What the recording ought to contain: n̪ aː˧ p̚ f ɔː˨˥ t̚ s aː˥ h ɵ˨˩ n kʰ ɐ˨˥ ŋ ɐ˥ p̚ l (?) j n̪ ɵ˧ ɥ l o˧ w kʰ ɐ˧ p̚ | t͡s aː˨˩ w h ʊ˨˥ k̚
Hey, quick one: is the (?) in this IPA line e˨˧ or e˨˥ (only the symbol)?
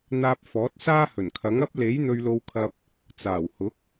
e˨˥